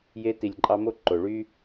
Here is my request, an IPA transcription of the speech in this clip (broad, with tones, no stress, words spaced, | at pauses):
je˧ti˨lʲǃʼɑ˧ mo˦ ǃo˨ɭy˦